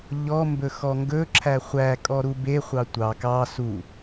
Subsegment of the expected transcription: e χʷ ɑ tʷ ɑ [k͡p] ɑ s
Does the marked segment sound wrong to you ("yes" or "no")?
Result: yes